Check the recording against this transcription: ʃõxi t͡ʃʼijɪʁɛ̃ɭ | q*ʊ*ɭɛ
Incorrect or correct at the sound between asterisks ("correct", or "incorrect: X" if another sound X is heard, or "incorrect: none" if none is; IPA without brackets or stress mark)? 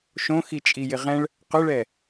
correct